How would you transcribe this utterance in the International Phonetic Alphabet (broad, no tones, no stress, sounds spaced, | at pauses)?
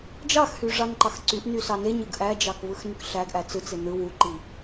d͡ʒ ɑ x h y ʐ ɑ n ǃ ɑ x ǀ y ʔ n y s ɑ n e ɲ ɯ ɡ ʔ æ d͡ʒ ɑ k v ɯ x n y k ɬ æ ɡ ʔ æ t͡s ɯ t͡s e n ɯ w u ǃ i